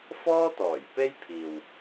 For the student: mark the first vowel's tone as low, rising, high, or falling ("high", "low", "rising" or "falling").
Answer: high